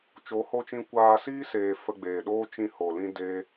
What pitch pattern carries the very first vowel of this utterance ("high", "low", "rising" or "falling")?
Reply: rising